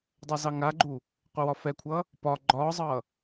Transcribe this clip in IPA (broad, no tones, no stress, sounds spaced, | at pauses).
dˤ ɛ z ɑ ŋ a ɡ͡ǃ u | qʷ ɛ w ɒ f ɛ kʷʰ ʌː | p ɒ ɡ͡ǃ ɒː zˤ ʌː